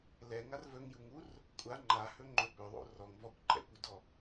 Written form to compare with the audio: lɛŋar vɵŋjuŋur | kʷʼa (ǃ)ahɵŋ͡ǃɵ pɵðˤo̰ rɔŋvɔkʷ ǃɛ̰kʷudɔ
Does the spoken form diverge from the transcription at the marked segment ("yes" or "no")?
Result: yes